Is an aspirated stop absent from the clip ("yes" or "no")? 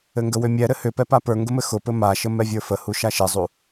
yes